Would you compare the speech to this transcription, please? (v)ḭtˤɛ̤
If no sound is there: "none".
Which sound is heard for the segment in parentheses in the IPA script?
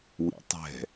w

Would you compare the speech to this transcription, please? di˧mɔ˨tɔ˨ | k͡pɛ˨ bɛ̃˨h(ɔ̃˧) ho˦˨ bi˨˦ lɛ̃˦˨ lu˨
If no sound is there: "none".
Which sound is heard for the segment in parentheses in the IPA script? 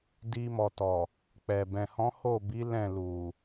ɔ̃˨˦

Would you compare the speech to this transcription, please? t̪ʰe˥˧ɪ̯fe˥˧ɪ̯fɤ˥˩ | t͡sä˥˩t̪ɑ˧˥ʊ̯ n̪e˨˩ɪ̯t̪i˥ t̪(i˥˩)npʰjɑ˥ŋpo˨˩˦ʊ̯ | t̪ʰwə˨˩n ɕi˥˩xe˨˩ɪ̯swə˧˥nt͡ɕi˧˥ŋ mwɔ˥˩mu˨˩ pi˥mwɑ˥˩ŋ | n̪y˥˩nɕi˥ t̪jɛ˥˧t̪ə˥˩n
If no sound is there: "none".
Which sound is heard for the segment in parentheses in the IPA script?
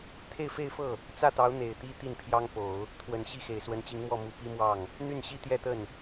i˥˩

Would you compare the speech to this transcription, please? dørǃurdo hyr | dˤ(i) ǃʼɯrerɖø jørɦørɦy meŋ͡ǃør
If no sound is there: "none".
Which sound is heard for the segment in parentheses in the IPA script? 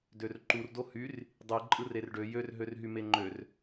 i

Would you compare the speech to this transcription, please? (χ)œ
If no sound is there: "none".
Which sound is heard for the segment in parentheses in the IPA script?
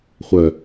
χʷ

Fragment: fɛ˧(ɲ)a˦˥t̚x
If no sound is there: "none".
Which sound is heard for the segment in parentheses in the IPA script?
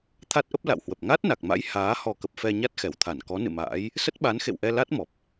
ɲ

